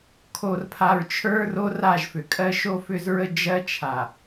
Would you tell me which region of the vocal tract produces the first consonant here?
velum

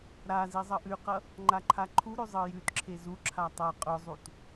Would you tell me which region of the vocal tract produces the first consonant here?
tongue tip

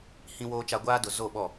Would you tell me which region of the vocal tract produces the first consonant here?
throat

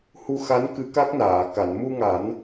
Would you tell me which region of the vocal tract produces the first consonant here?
throat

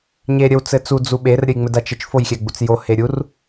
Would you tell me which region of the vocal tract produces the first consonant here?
palate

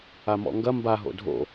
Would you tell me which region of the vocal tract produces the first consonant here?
lips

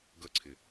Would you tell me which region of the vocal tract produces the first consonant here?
velum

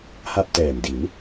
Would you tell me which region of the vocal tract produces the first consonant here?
throat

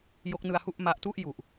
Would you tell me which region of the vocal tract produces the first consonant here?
palate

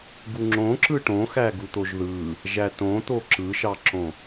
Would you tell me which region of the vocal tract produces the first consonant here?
velum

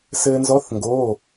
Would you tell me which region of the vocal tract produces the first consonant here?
tongue tip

